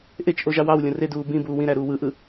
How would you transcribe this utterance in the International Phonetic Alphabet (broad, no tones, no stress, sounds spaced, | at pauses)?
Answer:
ʔ e t͡ʃ ʔ o ʒ ɑ w ɑ w lʲ õ r e d uː b ĩ b uː w ĩ ɾ æ ɾ uː w ɯ ʔ ɯ